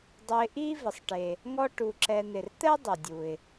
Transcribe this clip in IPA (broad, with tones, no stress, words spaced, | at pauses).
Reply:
dˤʊ˨ɪ̯ʔi˦ vɪ˩sˤʈe˩ | ŋɔ˦ʈu˨ǁɛ˨n̪ɪ˩r t̪ɛ˥dˤʊ˩dʲu˩ɪ̯